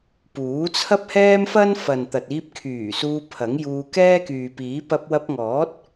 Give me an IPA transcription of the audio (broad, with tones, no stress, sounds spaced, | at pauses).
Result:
p uː˨˥ t͡sʰ ɐ˥ p̚ h ɛː˥ m f ɐ˥ n f ɐ˨ n t̪ ɐ˨ t̚ iː˧ p̚ kʰ yː˨˩ s uː˧ pʰ ɐ˨˥ ŋ j uː˧ k ɛː˥ k yː˨ p iː˨˥ p ɐ˧ p̚ w ɐ˧ p̚ ŋ ɔː˨˥ t̚